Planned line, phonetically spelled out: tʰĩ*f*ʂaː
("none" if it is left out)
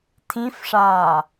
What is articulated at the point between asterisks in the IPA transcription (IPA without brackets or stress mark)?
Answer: f